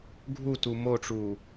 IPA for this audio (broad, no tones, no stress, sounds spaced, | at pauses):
ɡʱ u t u m o ʈ͡ʂ uː